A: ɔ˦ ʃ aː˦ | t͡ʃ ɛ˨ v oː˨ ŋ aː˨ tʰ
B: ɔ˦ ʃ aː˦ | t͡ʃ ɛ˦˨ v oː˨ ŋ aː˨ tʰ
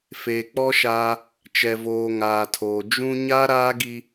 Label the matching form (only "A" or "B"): A